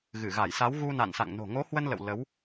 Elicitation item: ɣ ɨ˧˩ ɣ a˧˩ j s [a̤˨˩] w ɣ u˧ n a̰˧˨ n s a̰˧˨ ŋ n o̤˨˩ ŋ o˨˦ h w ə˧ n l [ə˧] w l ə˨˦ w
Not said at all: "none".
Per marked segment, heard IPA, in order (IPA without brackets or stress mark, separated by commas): a˨˦, ə̰˧˨